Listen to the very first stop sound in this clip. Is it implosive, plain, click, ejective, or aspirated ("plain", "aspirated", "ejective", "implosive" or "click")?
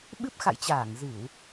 implosive